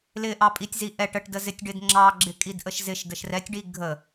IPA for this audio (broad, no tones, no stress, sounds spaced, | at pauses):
l ɪ ʔ ɑ pʼ i tʲ z i ʔ ɛ ʈ ə ʈ d ə z ɪ tʲ ɖ ɪ d ŋ͡ǁ ɑ ɡ͡ǁ ɪ kʼ i d ʔ ə ʃ z ɪ ʃ d ə ʃ r ɛ tʲ ɖ i ɡʱ ə